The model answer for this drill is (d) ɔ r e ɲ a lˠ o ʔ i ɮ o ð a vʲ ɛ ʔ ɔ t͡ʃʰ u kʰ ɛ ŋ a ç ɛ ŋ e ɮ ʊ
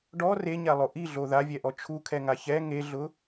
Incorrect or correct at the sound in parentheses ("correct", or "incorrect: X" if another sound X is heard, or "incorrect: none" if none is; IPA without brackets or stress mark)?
incorrect: ɖ